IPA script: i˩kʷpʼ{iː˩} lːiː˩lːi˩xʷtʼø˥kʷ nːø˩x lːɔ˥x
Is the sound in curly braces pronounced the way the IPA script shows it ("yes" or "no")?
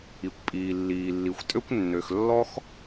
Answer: yes